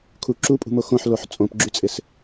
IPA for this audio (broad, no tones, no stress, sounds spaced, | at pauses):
kʰ u ǁ u pʼ ṳ m o x õ ħ l o ħ t͡sʼ õ p ɡ͡ǁ y t͡sʼ ɪ s